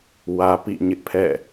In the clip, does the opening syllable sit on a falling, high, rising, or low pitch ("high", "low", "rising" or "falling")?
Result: high